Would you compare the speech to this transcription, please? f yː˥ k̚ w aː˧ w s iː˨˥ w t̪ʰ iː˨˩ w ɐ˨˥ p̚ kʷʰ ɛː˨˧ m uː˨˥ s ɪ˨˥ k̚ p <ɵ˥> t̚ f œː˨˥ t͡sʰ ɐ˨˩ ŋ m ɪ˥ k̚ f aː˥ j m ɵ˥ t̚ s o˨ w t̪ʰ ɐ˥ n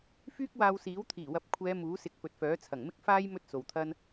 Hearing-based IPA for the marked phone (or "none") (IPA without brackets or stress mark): ɵ˨